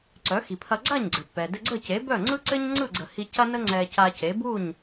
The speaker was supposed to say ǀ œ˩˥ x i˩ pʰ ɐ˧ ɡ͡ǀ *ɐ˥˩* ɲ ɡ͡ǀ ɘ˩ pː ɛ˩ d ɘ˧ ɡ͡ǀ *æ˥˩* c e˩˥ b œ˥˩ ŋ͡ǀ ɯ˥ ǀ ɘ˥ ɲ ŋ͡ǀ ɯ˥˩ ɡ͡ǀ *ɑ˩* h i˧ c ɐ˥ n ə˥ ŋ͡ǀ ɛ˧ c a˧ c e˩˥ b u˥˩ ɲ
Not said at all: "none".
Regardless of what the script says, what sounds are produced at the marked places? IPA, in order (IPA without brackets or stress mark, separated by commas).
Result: a˥˩, ə˥˩, ə˩